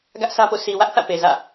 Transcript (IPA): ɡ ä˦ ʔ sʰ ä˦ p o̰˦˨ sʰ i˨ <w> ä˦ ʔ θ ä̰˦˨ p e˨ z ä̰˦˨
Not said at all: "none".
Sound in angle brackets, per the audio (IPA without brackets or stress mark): w